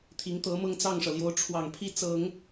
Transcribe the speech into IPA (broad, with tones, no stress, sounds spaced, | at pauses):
t̪ʰ i˧˥ ŋ t̪ ɤ˧˥ m ɤ˥˧ ŋ t͡s ɑ˥˩ ŋ ʂ ɤ˩ l j o˧˥ ʊ̯ ʈ͡ʂʰ w ɑ˨˩ ŋ pʰ i˥˩ t͡s ɤ˨˩˦ ŋ